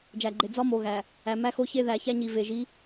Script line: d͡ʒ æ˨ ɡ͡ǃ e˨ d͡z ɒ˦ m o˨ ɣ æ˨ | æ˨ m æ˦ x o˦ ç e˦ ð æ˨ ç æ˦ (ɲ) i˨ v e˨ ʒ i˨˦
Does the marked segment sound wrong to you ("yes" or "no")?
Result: no